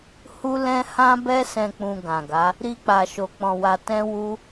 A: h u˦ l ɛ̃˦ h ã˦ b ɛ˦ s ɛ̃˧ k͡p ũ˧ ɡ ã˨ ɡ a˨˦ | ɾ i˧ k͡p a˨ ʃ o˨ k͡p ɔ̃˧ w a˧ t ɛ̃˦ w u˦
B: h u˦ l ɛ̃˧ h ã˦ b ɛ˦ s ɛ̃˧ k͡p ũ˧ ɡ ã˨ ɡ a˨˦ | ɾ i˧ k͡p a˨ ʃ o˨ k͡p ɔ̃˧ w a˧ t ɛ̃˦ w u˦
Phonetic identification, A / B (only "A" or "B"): A